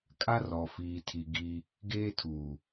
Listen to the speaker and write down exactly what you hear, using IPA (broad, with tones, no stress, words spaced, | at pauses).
kʼa˦ rɔ˨fiː˨tʰi˨ ɡi˦ | ɡeː˦tʰuː˨